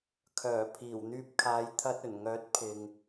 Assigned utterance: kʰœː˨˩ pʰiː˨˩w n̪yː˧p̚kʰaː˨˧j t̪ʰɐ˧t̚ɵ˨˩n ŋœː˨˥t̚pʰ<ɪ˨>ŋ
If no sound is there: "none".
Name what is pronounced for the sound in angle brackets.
ɪ˨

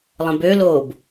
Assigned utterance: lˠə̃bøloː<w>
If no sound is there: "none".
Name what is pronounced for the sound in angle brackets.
b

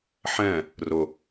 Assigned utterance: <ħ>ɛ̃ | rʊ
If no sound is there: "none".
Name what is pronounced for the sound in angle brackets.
ħ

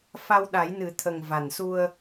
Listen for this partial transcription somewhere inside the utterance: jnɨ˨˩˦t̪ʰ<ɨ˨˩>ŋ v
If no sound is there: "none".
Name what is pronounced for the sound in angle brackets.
ə˨˩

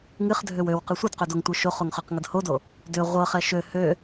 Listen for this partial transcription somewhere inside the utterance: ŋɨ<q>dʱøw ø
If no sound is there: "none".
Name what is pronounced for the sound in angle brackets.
χ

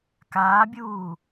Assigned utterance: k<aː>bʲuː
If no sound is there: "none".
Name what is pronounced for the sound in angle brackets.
aː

